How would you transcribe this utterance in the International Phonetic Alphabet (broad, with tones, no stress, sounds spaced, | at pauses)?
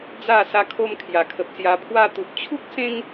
d͡z a˥˧ s a˧ kʰ o˧ m kʰ j a˨˩ kʰ ə˨ p̚ s j a˧ pʰ w a˧ t̪ u˨ p̚ t͡ɕʰ u˦ k̚ s ẽ˦ ŋ